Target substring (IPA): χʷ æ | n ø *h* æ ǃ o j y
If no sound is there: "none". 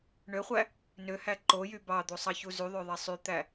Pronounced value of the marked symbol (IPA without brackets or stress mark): h